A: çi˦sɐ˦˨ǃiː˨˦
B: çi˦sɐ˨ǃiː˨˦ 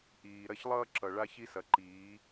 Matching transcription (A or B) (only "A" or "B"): B